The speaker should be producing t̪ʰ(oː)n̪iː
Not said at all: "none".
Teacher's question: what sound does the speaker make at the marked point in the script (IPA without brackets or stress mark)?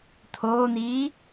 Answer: oː